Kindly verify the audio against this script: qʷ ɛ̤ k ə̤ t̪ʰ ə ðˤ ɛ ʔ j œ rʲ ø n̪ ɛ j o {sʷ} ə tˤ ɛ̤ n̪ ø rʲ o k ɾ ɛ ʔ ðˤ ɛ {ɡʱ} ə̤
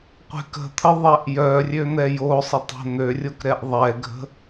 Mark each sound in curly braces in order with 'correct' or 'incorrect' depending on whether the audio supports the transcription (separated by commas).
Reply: incorrect, correct